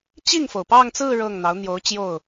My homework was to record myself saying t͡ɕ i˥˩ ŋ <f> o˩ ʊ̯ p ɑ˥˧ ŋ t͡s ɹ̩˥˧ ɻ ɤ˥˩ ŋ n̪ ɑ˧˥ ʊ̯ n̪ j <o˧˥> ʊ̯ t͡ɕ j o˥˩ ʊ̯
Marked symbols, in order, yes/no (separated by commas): yes, yes